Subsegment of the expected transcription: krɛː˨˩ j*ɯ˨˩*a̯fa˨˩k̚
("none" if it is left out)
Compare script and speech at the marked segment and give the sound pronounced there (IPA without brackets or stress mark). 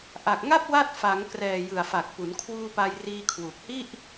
ɯ˨˩